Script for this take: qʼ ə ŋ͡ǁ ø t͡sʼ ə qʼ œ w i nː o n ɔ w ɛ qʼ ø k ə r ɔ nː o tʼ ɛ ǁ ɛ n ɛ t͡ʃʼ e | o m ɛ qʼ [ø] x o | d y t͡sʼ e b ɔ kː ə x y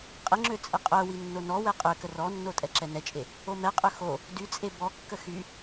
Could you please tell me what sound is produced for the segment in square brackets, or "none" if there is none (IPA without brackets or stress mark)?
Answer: ø